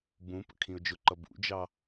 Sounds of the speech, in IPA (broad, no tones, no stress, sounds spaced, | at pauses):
b ũ p ə̰ kʰ ĩ ʊ̯ d͡ʒ ʊ ǃ ʌ b ṵ d͡ʒ ɑ